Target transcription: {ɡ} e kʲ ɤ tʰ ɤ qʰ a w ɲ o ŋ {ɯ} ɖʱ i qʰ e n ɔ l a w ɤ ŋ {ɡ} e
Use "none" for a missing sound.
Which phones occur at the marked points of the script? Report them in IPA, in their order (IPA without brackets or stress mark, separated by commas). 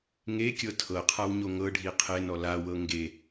ŋ, ɤ, ɡ